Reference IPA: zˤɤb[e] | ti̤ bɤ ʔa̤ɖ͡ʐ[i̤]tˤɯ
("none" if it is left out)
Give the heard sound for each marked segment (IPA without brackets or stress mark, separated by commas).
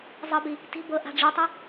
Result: i, i